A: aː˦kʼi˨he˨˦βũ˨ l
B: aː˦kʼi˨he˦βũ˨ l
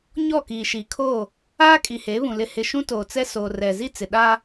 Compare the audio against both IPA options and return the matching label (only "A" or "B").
A